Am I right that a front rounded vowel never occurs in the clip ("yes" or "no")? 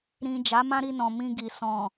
yes